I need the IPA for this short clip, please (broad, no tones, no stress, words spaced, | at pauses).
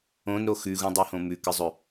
õnɾo xʉɣũdˤuhõ mʉkɨzˤɵ